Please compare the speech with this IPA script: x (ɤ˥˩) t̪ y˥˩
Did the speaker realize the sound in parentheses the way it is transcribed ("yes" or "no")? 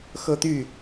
no